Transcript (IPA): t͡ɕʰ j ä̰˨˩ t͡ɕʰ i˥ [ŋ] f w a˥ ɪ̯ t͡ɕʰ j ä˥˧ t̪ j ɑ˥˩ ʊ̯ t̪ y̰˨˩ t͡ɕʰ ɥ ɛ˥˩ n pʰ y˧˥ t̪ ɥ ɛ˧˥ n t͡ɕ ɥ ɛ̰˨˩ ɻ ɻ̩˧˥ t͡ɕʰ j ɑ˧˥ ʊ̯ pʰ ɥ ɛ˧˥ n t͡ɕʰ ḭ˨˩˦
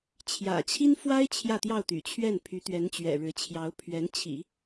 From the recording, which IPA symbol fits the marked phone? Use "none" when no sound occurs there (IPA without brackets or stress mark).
n